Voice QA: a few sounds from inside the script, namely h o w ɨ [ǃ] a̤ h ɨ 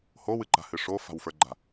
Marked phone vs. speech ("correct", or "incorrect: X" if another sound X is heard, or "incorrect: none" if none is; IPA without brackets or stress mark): correct